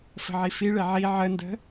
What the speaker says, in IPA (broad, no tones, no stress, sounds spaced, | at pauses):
f ə̤ ʕ i f i ɭ e ʕ i ʕ ə n d ə̤